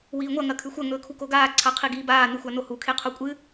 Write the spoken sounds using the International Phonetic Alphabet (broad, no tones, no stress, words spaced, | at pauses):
wiːŋʷɐ ŋɐkʰʉxʷɐ ŋɵːkʰukoɡaː ǀʰaqʰiɡiːbaː nɨxʷanohu kʰeqʰokʷʼɨ